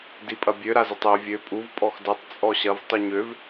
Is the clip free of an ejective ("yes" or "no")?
no